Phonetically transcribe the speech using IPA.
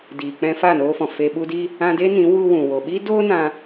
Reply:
diː˨k͡pɛ̃˧ fa˦˨noː˧fɔ̃˨ fe˧ɓu˦di˦ | ã˧de˦nĩ˨˦ wu˧wũ˨ wo˨ɓi˦ doː˦ nã˦

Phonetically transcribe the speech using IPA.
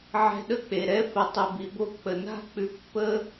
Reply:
ʕɛ̤˧ɗə˦k͡pe˨ ɾɛ˦fə˧ tˤʉ˨bi˨ bo˧ k͡pə˨na̤˦k͡pʉ˧ pːə˦

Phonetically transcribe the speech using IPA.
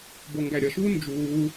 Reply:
boŋɡæɾʲʌʃuː nd͡ʒuː

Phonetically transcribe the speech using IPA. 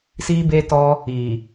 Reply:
si˦be˦tɔ˦ | i˨

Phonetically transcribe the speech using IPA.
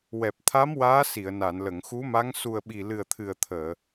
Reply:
wɛ˨˩p̚t̪ʰa˧˥m waː˧˥si˨˩˨ə̯na˨˩˨n lə˨˩˨ŋxu˧˥ma˧˥ŋ su˨˩ə̯ɓi˨˩lɨ˨˩ə̯ t̪ʰɨ˨˩ə̯t̪ʰəː˨˩˨

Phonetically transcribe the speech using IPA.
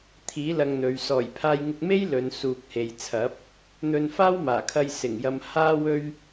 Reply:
t̪ʰiː˨˥ lɐ˧ŋn̪ɵ˨˧ɥ sɔː˨˩jpʰaː˧jŋɪ˧k̚me˥j lɵ˨˧n suː˨k̚he˨j t͡sʰɐ˨˥p̚ | n̪ɵ˧nfaː˥wmaː˨˩kʰɐ˧j sɪ˨˩ŋjɐ˧mhaː˥ wɵ˥ɥ

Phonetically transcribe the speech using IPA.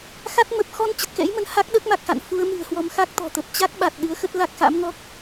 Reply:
xa˦˥t̚mə˨˩p̚ xɔ˧n t͡ɕə˨˩t̚kɛ̰˧˥jmə˧n ha˦˥k̚ɗəː˦˥k̚ma˨˩k̚xa̰˧˨n fu˨˦ə̯mɨ̤˨˩ə̯hwɔ˧m xa˦˥k̚t̪ɔ̤˨˩t̪ə˨˩p̚ t͡ɕa˦˥k̚ɓa˨˩t̚ ɗɨ˨˦ə̯xə˦˥t̚la˦˥k̚xa̰˧˥m ŋɔ˦˥k̚

